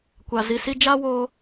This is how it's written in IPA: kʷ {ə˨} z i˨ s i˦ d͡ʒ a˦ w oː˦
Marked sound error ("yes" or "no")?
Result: yes